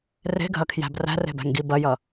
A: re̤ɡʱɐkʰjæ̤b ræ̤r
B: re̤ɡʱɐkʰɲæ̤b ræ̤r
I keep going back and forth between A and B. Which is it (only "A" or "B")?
A